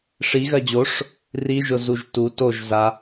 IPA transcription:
ʂ i ɣ ɜ d͡ʑ o ʂ | r i ʒ ʊ z u ʒ t u t o ʒ z a

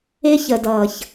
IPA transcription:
ɪ˧ ç ə˨ d ʌː˨ ç

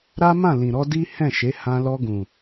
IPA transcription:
ɾ a˦ m ã˦˨ l ĩ˨ ɾ ɔ˧ d i˦ h ɛ̃˦˨ ʃ e˨˦ h ã˧ l ɔ˧ ɡ ũ˨

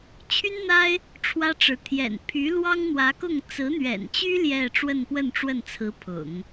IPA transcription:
t͡ɕʰ y˥ n n̪ a˥ ɪ̯ | ʈ͡ʂʰ w ä˥ ʈ͡ʂ ɻ̩˧˥ t̪ʰ j ɛ̰˨˩ n pʰ y˧˥ l w ɑ˥ ŋ n̪ w ä˧˥ k ʊ˥˩ ŋ t͡s ɹ̩˧˥ n̪ ɥ ɛ̰˨˩ n t͡ɕ y˥ l j ɛ˥˧ ʈ͡ʂ w ə˥˧ n p w ə˥˧ n ʈ͡ʂ w ə˥˩ n t͡sʰ ɹ̩˧˥ pʰ ʊ̰˨˩˦ ŋ

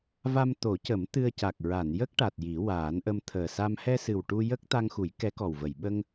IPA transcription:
v a˧ m t̪ o˨˩˦ c ə˨˩˦ m t̪ ɨ˧ ə̯ c a˨˩ k̚ ɹ a˨˩˨ n j ə˦˥ k̚ ʈ a˨˩ t̚ j i˨˩˦ w aː˨˩˦ n ʔ ə˧ m t̪ʰ əː˨˩ s a˧ m h ɛ˧ s ɨ˨˩ w ʈ u˧ j ə˦˥ k̚ t̪ a˧ ŋ x u˨˩˦ j k ɛ˧˥ k ɔ˨˩ w v ə˨˩˨ j ɓ ə˧ ŋ

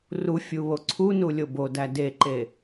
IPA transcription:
r u fʲ u β o ǀʰ u n u lʲ o b o d æ d e ǃ e

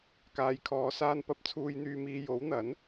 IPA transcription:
k aː˨ j kʰ ɔː˨˧ s aː˧ n p ɐ˧ p̚ t͡sʰ uː˧ j n̪ yː˧ m iː˧ j o˨˥ w n̪ ɐ˨˥ n

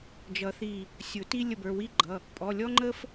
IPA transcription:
d͡ʒ ʌ˨˩˦ θ i˧˩ | sʲ ʊ˨˩˦ t i˦ lʲ ə˧˩ b ə˞˩˧˩ w i˦ ɡ͡ǃ ʌ˩˧˩ | pʼ ɔ˩˧˩ lʲ ɔ˦ ŋ͡ǃ ə˦ f

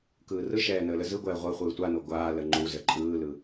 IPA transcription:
k ɯː r ɯ ʃ ɛː n əː l ə z ɯ ɡʷ ɛː ʁʷ əː χʷ ɯː tʷ a n o ɡʷ aː l ə ŋ͡ǃ u z ə ǃʼ ɯː l ɯ

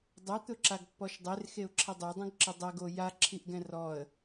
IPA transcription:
dˤ o t̪ ʊ ǁ a ɡ pː ɔ ʃ dˤ e r x e ʊ̯ ǁʰ ɛ dˤ e dˤ õ ɡ ǁ ɪ dˤ ɛ ɡ o j a ǁʰ i ʔ ɡ ɛ̃ r ɔ ə̯

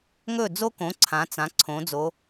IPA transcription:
ŋ ɵ˥˩ d͡z o˥ k õ˩˥ ǀʰ ã˩˥ t͡s ã˩˥ ǀʰ õ˩˥ d͡z o˩˥

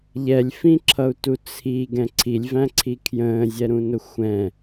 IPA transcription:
ʎ ɛ lʲ f ĩ ǁʰ ʌ u̯ t u t͡sʰ i ɡ ɛ̃ ǀʰ i lʲ v æ̃ ǀʰ i kʰ j ə̃ː zʲ ɛ ɾ ũ n ʊ xʷ ɛ̃

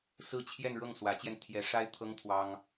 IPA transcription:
s ɹ̩˥˧ t͡ɕʰ j ɛ˥˧ n ɻ ɤ˥˩ ŋ s w ä˧˥ t͡ɕ j ɛ˧ n t̪ʰ j ɛ˧˥ ʂ a˥ ɪ̯ t̪ʰ ɤ˥ ŋ t̪ʰ w ɑ˥ ŋ

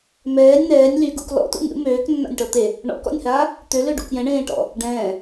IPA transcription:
m ɛː nʲ n̪ ɛː nʲ l y ɡ ṵ k l ɔ̰ t ṵ nʲ ṵ m øː k nː a̰ nʲ ʈ ɔ t̪ e | ɳ ɔ̰ k ɔ̰ nʲ h aː | t̪ ø l ø ɖ ṵ k j ɛ̃ ɳ ẽː ʈ ɔ̰ | ɖ ɛ̃ː

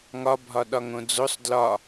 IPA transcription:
ŋ ɒ bʱ ɒ ɗ ɒ ŋ õ d͡z o sˤ d l ɒ

